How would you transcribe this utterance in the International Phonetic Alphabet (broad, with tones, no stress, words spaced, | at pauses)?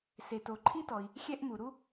se˩to˩ǃʰi˥tɔ˩i̯ | xʲɛ˥ʔmu˩ɾu˥